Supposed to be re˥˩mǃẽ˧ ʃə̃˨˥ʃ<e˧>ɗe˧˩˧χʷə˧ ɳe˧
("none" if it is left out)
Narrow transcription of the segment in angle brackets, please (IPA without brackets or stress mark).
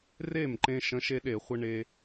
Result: e˧